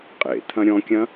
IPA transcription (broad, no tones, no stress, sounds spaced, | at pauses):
qʼ ḛ t̪ʰ ɐ̃ ɾʲ ɔ̃ kʲ ɐ̃